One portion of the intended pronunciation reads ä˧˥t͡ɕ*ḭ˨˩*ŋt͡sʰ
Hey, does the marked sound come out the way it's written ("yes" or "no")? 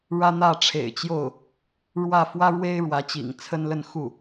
yes